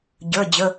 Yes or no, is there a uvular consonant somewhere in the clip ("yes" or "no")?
no